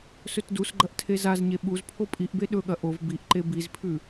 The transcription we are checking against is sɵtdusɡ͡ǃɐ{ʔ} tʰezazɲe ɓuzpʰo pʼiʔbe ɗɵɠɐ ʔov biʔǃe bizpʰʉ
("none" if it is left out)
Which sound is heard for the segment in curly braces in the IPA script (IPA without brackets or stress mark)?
ʔ